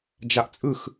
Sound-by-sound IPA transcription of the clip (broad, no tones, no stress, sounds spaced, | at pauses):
d͡ʒ a ʔ t͡sʼ ɯ x